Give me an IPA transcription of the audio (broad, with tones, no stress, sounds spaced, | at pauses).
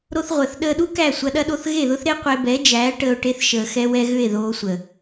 ɾ o˧ θ ʁʷ əː˨ θ ɗ əː˧ ɗ u˦ k æ˦˨ sʷ ɐ˧ ɗ ɐ˦ ɗ o˧ θ ɣ e˦˨ ð ʊ˦ θ ɾ e˦ qʷ e˧ b ɛ˨˦ d͡ʒ æː˨˦ ʈ əː˧ o̯ ʈ e˧ θ ʃ əː˨ x ɛ˧ w ɛ˧ ɣ ʏ˦˨ e̯ ð oː˧ sʷ ə˨